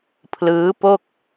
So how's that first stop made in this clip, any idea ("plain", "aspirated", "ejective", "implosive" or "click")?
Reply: aspirated